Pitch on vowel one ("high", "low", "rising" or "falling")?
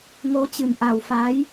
rising